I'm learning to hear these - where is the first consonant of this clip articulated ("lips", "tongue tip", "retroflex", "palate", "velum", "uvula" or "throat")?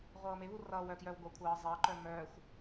uvula